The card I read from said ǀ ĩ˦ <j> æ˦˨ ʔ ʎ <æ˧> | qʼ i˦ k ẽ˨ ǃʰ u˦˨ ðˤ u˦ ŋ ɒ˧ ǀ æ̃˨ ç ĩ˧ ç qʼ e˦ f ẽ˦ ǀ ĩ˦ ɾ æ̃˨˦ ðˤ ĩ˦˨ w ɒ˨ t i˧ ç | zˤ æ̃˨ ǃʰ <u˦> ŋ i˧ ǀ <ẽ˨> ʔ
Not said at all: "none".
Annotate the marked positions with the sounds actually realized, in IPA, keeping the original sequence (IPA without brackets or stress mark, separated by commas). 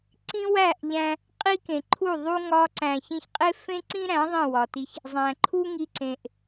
w, æ̃˧, u˦, ẽ˨